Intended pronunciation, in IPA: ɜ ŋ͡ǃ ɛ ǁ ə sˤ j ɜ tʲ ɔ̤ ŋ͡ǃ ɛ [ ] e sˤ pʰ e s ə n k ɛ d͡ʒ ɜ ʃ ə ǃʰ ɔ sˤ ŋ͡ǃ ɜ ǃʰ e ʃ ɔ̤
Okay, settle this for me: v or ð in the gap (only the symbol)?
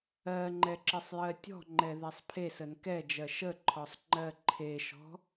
ð